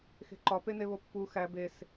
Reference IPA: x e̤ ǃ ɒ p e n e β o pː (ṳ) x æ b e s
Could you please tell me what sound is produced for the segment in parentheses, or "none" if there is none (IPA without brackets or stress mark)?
u